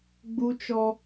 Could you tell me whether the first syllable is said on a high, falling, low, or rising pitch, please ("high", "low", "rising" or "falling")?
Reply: high